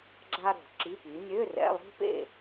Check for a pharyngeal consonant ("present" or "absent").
absent